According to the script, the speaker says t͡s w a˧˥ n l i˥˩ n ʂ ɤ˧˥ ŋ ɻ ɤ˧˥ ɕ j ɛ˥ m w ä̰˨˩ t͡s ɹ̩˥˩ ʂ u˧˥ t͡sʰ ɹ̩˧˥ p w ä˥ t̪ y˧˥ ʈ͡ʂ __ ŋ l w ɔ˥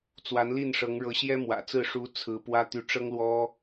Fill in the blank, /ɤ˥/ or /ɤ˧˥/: ɤ˥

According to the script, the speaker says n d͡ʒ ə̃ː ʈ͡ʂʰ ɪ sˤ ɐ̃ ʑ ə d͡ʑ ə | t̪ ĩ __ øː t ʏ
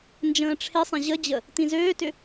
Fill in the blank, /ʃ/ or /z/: z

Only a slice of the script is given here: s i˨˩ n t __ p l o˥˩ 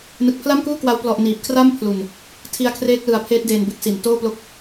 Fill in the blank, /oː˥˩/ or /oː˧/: oː˥˩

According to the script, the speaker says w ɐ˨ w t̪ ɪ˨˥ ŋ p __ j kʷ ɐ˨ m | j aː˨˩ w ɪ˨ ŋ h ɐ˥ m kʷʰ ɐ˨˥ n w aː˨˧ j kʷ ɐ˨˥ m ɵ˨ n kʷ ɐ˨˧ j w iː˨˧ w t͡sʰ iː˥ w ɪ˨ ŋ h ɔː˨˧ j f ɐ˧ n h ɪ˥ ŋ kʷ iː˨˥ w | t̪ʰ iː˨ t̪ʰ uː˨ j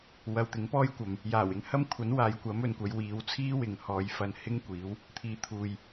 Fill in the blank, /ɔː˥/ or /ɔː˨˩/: ɔː˥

